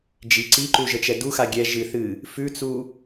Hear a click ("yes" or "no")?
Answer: yes